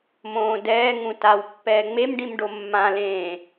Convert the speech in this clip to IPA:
m õː d ɛː ŋ ũ t a w pː ɛː ŋ͡m e m ɖ ĩ m ɖ o mː ã l ẽː

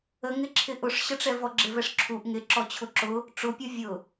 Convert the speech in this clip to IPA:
ə ŋ ɪ ǁʰ ɪ ʔ ʊ ʂ ɕ ə ʈ͡ʂ ɛ v ɔ ɡ͡ǁ ɪ v ɛ ʂ ǁʰ u ʔ ŋ ɪ ǁ ɔ t͡ɕʰ ʊ ǁ ʊ | ʈ͡ʂ ʊ pʲ ɔ vʲ ʊ

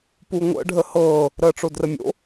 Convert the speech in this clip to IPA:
p u ŋʷ ə̰ ɖʱ ə h ɤː | ɾ əː ʈ͡ʂ o d r ə mʲ o̰

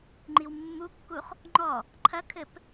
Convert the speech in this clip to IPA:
ŋ͡ǃ i w mː u kː u χ | ŋ͡ǃ ɔ | ǃʰ ɐ kʰ ɘ p

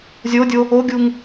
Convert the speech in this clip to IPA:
zʲ o dʲ o | o ɡʲ u ŋ

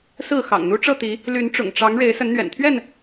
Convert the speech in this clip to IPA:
s ɹ̩˥˨ x ɑ̰˨˩ ŋ n̪ u˦ ʈ͡ʂ ɤ˥˨ t̪ i˨˦ | l y˨˦ n ʈ͡ʂ ʊ̰˨˩ ŋ ʈ͡ʂ ɑ˨˦ ŋ ɻ e˨˦ ɪ̯ s ə˨˦ n n̪ ɥ ɛ̰˨˩ n t̪ʰ ɥ ɛ˥˨ n

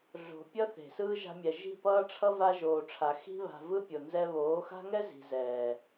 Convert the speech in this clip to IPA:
ɮ o̤˨ pʲ ʌ˦ θ e̤˨ s ɯː˦ ʒ a̤˧ mʲ ɛ˨ ʒ i̤˦˨ p ʌː˦ ʈ͡ʂʰ ʌ˦ v a˧ ʒ oː˨ ʈ͡ʂʰ a˨ x i̤˧ β a̤˨ v ɯ˦ pʲ o˨ n z ɛ˧ β oː˨˦ x a̤˦ ŋ ɛ˦ z i̤˨ z ɛː˨

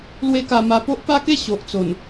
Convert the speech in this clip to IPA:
l w e˦ k a˧ m a˧ p o˦ ʔ p a˦ k e˥˧ ɕ o˨ ʔ t͡s o˨˩ n

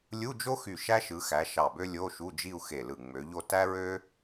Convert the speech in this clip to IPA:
lʲ u˧˥˧ d͡ʒ o˥ x y˧˩ ʃ æ˥ ʃ ɯ˨˦ x æ˨˦ ʃ ɑ˧˩ b ø˥ lʲ o˧˥˧ ʃ u˧˥˧ d͡ʒ i˥˧ u̯ x e˧˩ l ɯ˧˩ ŋ͡m ø˨˦ ʎ o˥˧ t æ˥ ɹ ø˥

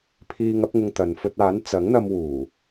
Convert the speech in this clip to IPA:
pʰ iː˧ ŋ ɐ˨˥ p̚ ŋ ʊ˧ ŋ t̪ ɐ˨ n f ɵ˧ t̚ aː˨˥ n t͡s ɐ˨˥ ŋ n̪ ɐ˧ m w uː˨˩

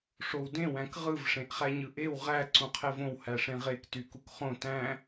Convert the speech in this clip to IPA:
ʂ o w d ẽ w æ̃ k ʁ ɯ v ʂ ẽ ʔ χ æ ɲ ɯ ʔ e w ʁ æ ǀ ũ qʰ e v õ w h æ ʂ ẽ ʁ e k t y k u k χ õ t æ̃

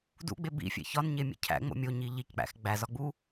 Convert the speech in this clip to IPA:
d ṵ ɡ͡b e b ḭ fʲ ḛ ç ɒ n ɲ e mʲ ḛ cʰ æ̰ ŋ͡m o̰ mʲ o ɲ i ʎ i c k͡p æ̰ x ɡ͡b æ z ɒ ɡ͡b u

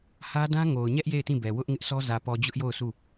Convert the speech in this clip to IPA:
h ä˦ d ã˦ ŋ o˨ ʊ̯ ɲ ɛ˦ ʔ j e˦˨ ɪ̯ t ĩ˦˨ b ɛ˨ w ʊ˦ ʔ ŋ ɪ˦ ʔ s ɔ˦ z ä˨ p ɔ˨ d͡ʑ ʊ˦ ʔ j o˦˨ ʊ̯ sʰ u˦˨

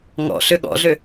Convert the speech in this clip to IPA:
ŋ ɔ̰ ɬ ø ɠ ɔ̰ ɮ ø

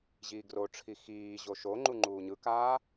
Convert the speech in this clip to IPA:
ʑ iː ɡ r o ʈ͡ʂʰ i x iː ʑ o ʃ o ŋ͡ǃ u ŋ͡ǃ uː ɲ ɯ k aː

